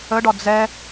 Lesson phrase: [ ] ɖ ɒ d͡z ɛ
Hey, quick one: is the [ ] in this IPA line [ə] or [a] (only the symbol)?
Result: ə